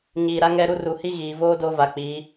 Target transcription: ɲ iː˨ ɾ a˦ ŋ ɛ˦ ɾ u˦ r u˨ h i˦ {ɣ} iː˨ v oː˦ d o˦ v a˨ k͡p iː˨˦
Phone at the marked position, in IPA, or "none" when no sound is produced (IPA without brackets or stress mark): ɣ